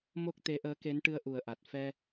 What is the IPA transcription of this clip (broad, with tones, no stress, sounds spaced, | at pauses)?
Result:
m o˦˥ k̚ t̪ e˧˥ ʔ əː˧˥ k e˧˥ n ʈ ɨ˧˥ ə̯ ʔ u˨˩ ə̯ ʔ a˨˩ t̚ f ɛ˧